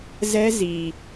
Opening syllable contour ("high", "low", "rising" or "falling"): high